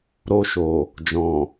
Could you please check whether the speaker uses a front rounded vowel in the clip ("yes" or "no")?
no